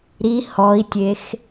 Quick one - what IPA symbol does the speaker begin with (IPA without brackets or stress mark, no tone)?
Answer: ɾ